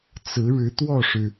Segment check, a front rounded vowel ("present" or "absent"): absent